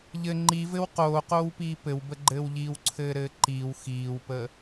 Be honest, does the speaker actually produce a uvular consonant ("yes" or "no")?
yes